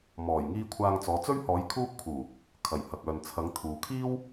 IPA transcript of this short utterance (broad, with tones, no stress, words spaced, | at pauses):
mɔː˨˩jŋiː˧ kʷʰaː˧ŋt͡sɔː˨˧ t͡sɵ˥ɥhɔː˨˥j kʰuː˥p̚kʰuː˨˩ | kʰɐ˨˩j hɐ˨k̚œː˨n t͡sʰɐ˨˥ŋt̪ʰuː˨ kʰiː˥w